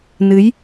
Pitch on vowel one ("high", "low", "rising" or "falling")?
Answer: rising